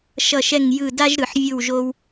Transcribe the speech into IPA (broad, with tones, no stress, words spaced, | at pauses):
ʃʌ˥˧ʃɛ˥˧ŋjɯ˥˧ da˥ʒɾɯ˨˩˦ħ vʲɯ˥˧wʒo˥w